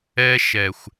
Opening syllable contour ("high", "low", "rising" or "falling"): high